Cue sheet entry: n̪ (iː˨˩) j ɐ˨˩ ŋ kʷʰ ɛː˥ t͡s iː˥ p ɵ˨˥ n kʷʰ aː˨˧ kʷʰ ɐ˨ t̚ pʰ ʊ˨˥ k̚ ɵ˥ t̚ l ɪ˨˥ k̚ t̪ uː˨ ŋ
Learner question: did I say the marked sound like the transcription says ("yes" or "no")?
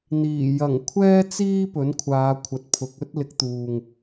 yes